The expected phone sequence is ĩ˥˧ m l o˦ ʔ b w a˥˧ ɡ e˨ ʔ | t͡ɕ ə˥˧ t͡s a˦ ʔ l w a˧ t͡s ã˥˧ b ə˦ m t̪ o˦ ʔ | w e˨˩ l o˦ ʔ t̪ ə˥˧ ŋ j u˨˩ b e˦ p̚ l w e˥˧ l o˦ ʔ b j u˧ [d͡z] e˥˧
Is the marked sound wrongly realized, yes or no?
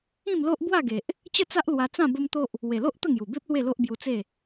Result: yes